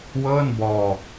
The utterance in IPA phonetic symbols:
w ɤː˥˩ n b ɔː˧

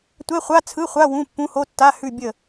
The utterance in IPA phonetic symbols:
tʷ ɛ˧˥˧ χʷ a˧˥˧ t͡sʰ ɯ˧˥˧ χʷ a˧˥˧ w ũ˧˥˧ pː ũ˧˥˧ h o˧˥˧ tː a˧˥˧ h ʉ˦˨ bʲ ə˦˨

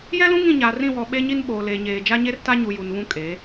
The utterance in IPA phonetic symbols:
j ɛ˦ l ũ˦ ŋ ĩ˦˨ ɲ aː˨ r ĩ˦˨ w ɔ˨ ɓ e˦ ɲ i˦ n ɓ oː˨ l eː˨ ɲ eː˨ d͡ʒ a˦ ɲ e˦ r t a˦ ɲ u˨ j u˨ n β ũ˦ kʼ eː˨˦

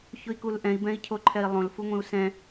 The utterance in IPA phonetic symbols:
ç ʊ i̯ k u l ʔ ɛ̃ i̯ b ɛ̃ i̯ cʰ o ǃʰ ɛ i̯ lˠ õ l f u ŋʷ ĩ u̯ s ɛ̃

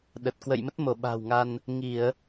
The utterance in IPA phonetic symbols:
ɗ ə˨˩ t̚ k w ə̰˧˨ j m ə˦˥ t̚ m o˧˩ ɓ a̤˨˩ w ŋ a˧ n | ŋ i˧˩˨ ə̯

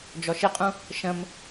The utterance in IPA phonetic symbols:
d͡ʒ ɔ ʃ ɪ qʼ ũ | ʃ ə̃ m

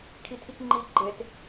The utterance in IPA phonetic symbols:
kʰ i tʰ i k ŋ͡ǃ i ɡ͡ǃ e t

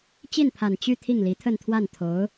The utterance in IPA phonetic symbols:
t͡ɕ i˥˩ n pʰ a˨˩ n t͡ɕ y˥˧ t̪ʰ i˥˩ ŋ l i˧˥ t̪ʰ ə˥˧ n t̪ʰ w a˥˩ n t̪ʰ o˧˥ ʊ̯

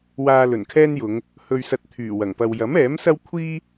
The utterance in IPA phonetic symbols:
w aː˧ l ɵ˨˩ n kʰ ɛː˥ n j ʊ˨˧ ŋ | h ɵ˨ ɥ s ɐ˨ t̚ t̪ʰ yː˨˩ w ɐ˨˩ ŋ p ɐ˧ w j ɐ˨˥ m ɛː˨˥ m s ɐ˥ w kʷʰ iː˥

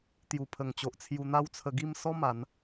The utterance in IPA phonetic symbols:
t̪ j u˨˩ pʰ ə˨˩ ŋ t͡ɕ o˨ ʔ t͡sʰ j u˧ n̪ a˥˧ w t͡sʰ ə˧ ɡ i˥˧ m s ɔ˦ m a˨˦ n

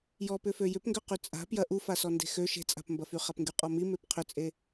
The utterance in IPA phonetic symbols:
j ɔ p ʏ f ø j ʏ p ŋ ɡ ʏ q y t͡sʼ a̤ p j ɐ ʔ u f a s ɔ n d e̤ x ø ʃ e̤ t͡sʼ a̤ p m b ɐ f y χ a p ŋ ɡ y qʼ ɔ m i m e p qʰ ʏ t͡sʼ e

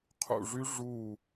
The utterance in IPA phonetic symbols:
qʰ ṵ˦˨ ʐ y˦˥ ʐ u˦˨

